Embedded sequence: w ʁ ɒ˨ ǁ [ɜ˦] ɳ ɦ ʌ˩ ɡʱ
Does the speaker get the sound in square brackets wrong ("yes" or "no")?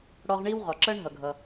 no